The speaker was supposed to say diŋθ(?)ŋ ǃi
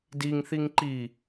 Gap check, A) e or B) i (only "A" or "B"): B